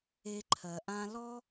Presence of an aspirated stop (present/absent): present